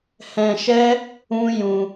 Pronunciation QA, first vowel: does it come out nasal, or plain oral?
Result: nasal